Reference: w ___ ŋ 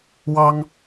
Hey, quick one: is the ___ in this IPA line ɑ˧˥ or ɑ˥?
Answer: ɑ˥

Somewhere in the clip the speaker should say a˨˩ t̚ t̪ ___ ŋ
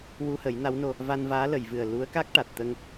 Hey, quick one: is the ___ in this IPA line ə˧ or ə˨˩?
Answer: ə˧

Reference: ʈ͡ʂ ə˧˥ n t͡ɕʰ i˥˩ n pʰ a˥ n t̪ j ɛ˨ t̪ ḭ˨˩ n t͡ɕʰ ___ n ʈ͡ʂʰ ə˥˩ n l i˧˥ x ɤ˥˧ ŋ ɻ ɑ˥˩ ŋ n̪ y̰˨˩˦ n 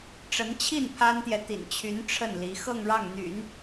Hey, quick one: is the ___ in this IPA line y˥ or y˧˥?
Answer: y˧˥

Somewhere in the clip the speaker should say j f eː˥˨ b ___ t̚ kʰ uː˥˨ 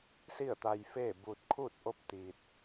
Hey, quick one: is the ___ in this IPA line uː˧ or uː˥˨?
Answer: uː˧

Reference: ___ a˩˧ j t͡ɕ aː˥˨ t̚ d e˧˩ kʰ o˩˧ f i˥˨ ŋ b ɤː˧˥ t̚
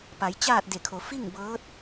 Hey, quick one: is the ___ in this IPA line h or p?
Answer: p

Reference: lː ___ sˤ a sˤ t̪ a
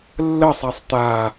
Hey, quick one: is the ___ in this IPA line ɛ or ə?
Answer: ə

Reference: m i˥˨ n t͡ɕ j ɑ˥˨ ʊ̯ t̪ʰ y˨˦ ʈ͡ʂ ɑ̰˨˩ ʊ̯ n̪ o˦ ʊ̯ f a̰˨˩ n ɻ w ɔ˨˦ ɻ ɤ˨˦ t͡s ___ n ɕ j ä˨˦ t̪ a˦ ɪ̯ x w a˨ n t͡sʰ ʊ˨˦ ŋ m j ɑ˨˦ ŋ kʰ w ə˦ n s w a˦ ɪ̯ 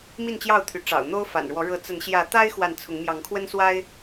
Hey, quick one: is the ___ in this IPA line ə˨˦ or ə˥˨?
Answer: ə˨˦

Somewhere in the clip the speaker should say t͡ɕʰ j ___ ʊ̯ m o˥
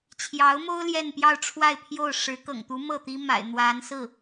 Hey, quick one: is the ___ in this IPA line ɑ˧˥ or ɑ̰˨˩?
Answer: ɑ˧˥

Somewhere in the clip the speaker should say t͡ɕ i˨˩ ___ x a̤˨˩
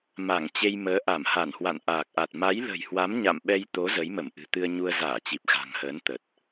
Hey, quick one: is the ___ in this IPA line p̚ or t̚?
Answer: p̚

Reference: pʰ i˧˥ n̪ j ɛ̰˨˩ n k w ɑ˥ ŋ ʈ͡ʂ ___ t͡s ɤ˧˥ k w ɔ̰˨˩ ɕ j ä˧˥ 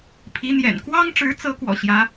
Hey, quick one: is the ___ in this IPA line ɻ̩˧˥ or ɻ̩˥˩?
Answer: ɻ̩˧˥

